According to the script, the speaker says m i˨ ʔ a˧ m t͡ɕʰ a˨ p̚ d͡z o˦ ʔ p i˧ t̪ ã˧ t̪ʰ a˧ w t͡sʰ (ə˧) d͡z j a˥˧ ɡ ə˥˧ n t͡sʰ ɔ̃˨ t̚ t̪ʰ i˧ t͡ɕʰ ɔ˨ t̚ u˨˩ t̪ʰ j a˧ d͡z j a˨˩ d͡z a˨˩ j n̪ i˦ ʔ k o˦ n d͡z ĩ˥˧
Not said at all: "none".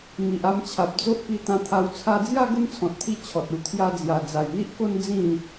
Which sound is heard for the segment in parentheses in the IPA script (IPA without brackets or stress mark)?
a˧